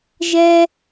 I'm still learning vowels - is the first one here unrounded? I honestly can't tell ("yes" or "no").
yes